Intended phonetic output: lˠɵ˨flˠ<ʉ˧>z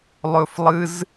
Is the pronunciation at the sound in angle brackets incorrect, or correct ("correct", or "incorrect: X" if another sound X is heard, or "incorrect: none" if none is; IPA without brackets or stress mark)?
incorrect: ɨ˧